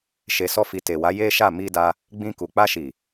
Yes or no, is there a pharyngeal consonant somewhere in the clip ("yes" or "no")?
no